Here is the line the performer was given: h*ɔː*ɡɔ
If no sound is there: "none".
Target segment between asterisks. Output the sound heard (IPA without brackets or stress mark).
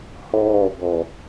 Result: ɔː